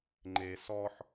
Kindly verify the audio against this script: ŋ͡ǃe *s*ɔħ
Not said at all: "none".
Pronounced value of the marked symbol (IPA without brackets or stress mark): s